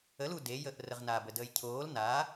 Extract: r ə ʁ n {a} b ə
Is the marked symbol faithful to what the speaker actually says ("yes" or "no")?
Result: yes